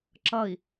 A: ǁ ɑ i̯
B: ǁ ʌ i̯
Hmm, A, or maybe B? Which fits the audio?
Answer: B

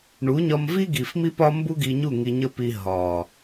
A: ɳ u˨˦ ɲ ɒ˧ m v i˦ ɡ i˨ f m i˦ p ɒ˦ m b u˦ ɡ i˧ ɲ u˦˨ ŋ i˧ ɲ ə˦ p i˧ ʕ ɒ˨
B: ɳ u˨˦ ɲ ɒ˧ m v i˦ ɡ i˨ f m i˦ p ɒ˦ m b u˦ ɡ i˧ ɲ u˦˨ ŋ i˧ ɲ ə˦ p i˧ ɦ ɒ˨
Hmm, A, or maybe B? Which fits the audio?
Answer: B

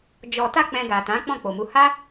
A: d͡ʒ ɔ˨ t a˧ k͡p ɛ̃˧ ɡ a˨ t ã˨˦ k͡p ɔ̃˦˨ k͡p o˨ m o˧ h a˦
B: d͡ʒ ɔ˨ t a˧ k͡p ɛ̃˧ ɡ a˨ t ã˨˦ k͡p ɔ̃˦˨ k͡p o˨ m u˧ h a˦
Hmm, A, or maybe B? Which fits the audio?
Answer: B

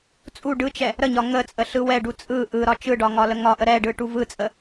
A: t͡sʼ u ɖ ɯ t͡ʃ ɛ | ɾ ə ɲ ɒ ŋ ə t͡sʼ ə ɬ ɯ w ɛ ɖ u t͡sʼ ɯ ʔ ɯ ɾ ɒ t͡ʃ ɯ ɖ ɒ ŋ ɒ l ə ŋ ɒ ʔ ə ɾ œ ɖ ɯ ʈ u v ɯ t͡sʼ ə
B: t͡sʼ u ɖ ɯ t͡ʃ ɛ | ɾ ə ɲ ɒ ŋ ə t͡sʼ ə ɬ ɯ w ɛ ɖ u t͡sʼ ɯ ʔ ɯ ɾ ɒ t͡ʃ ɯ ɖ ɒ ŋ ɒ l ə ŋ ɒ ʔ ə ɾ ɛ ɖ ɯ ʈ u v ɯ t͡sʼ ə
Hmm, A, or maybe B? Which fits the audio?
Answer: B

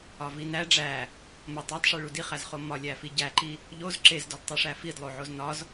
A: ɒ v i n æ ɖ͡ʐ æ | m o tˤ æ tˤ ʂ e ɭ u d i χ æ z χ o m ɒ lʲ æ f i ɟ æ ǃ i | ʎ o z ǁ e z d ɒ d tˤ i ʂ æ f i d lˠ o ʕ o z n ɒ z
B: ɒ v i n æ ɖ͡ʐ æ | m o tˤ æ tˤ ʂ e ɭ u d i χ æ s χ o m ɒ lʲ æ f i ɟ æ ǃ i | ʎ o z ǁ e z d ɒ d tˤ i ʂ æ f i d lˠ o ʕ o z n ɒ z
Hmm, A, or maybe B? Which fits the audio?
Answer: A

